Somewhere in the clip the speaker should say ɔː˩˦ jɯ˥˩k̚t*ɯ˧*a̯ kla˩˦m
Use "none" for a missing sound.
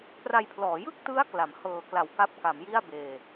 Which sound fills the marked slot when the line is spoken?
ɯ˦˥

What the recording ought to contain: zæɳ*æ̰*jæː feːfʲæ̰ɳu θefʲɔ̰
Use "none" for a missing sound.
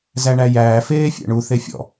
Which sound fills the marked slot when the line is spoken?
æ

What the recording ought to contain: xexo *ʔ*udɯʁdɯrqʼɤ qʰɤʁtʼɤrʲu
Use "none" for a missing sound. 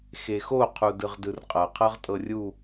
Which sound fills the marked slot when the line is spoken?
qʰ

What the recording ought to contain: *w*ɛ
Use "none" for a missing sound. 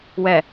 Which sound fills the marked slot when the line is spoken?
w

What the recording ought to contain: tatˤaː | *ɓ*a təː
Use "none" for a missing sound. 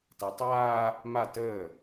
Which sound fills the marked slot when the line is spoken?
m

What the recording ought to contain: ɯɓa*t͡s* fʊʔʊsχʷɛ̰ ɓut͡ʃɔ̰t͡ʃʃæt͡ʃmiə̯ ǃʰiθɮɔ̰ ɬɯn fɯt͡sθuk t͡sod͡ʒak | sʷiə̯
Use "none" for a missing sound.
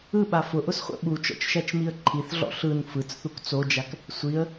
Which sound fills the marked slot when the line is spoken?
none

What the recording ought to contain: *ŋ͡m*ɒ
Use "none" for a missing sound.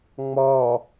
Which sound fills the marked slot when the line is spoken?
ŋ͡m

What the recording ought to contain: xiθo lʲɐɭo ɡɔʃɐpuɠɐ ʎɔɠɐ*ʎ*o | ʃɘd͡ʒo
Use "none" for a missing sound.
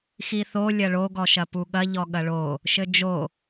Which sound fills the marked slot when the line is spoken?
ɭ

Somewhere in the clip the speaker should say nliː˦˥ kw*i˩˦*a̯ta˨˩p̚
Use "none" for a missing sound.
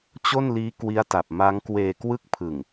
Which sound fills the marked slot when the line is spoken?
i˦˥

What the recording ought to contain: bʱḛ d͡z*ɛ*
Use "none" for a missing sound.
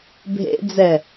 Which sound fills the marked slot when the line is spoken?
ɛ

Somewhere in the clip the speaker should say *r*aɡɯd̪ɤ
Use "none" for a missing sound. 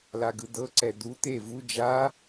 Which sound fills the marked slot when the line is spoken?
l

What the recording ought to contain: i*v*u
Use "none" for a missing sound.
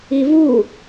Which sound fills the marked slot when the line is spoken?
v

